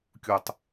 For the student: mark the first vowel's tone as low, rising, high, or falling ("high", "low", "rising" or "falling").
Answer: low